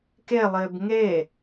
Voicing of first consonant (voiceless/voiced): voiceless